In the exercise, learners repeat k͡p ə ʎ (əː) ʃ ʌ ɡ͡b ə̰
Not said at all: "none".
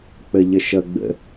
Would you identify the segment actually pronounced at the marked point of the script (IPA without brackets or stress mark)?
ə